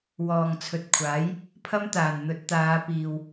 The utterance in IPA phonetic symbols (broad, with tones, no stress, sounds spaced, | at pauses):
w ɔː˨ ŋ t͡sʰ ɵ˨ t̚ kʷʰ aː˨˥ j | pʰ ɐ˥ m t̪ aː˨˩ n n̪ ɵ˨˥ t̚ t̪ aː˨˧ p iː˨ w